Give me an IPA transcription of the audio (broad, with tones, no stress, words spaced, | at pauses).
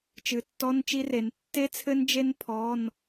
t͡ʃɨ˩˧tːɔ˧˥˧n t͡ʃi˦˥re˩˧n tːe˦˥t͡sʰɘ˦˥nd͡ʒe˦˥n pʰɔ˧˥˧n